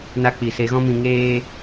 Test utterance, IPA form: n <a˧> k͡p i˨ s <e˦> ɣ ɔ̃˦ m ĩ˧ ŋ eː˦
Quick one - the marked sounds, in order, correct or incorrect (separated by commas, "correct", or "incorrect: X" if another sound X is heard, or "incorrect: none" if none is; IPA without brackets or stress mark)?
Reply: correct, incorrect: e˧